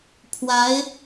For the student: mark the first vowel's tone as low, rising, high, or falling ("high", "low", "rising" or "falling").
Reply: rising